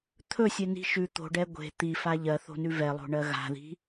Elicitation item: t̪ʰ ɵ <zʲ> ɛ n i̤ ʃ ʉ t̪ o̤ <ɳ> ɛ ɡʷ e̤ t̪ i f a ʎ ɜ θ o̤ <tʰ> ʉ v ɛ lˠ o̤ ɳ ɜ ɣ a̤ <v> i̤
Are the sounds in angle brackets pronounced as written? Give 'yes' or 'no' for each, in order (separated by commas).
no, no, no, no